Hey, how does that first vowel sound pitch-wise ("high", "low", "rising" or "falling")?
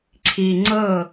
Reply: low